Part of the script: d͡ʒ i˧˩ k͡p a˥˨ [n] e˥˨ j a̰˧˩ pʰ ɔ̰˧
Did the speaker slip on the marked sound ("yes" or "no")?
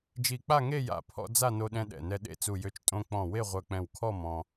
yes